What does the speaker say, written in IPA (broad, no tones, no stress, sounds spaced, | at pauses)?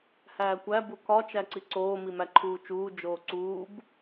h æː kʷ æ b u k ɒ t͡ʃ æ ǀ i ǀ oː m i m æ ǃʰ uː t͡ʃ uː d͡ʒ oː ǀ uː b